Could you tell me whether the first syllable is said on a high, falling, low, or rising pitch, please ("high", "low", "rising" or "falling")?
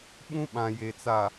high